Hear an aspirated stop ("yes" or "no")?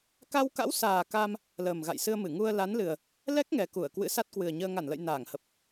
no